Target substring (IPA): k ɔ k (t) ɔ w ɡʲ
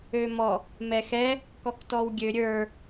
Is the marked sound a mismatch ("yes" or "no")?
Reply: no